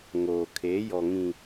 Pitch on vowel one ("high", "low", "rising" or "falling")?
low